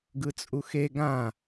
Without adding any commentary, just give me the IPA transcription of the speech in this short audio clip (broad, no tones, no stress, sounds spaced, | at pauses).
ɡ ɯ t͡sʼ u x e ɡ ã